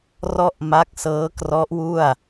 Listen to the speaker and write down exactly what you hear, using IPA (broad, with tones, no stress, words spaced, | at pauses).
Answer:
rɔ˥˩ʔma˦˥k̚sɤː˦˥krɔ˦˥ʔ wu˥˩a̯